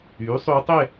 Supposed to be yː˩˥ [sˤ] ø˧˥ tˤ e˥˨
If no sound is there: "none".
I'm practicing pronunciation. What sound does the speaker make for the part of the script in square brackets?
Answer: sˤ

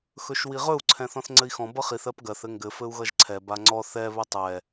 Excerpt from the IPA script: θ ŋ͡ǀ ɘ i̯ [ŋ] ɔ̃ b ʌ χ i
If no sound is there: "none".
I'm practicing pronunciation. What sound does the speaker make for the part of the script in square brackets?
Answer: x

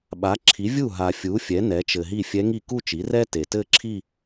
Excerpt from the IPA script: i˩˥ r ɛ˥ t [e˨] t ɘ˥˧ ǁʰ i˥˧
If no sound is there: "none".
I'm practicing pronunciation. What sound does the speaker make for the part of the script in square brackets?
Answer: e˨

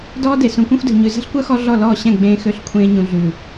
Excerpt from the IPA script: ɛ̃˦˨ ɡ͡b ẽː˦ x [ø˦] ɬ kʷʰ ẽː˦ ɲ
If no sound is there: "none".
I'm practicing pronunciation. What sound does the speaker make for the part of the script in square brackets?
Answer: ø˦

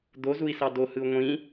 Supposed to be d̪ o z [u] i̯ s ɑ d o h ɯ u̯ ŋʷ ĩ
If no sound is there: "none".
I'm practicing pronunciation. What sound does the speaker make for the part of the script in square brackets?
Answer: u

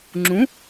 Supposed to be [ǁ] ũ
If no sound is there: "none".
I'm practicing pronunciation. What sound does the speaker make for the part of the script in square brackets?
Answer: ŋ͡ǁ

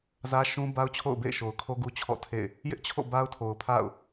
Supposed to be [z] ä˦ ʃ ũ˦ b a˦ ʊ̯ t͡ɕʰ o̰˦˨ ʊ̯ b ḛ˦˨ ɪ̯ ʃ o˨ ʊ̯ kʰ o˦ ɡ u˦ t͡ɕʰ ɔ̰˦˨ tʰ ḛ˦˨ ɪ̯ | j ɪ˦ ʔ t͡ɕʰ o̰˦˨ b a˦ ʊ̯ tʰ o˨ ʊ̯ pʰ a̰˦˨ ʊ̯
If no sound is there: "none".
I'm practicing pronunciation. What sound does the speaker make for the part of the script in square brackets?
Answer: z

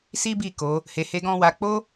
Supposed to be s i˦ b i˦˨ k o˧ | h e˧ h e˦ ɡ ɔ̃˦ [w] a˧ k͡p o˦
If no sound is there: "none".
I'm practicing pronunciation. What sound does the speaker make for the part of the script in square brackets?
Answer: w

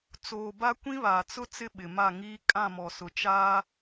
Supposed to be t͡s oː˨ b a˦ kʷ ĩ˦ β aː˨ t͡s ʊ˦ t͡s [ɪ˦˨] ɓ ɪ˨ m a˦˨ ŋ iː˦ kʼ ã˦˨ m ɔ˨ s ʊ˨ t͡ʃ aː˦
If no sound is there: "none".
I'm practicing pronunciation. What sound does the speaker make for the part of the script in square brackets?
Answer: ɪ˦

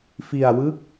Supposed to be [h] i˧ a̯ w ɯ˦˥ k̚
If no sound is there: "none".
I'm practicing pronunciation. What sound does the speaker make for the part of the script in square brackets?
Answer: f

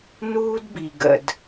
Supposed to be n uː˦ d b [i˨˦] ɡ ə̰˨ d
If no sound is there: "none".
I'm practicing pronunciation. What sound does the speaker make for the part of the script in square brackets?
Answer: i˨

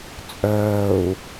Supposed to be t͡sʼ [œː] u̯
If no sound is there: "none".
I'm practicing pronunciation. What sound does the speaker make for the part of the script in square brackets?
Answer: œː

